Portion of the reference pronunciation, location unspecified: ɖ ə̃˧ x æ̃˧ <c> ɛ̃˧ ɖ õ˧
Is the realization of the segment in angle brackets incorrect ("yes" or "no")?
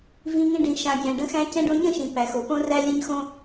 no